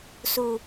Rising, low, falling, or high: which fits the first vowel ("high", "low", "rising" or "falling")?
high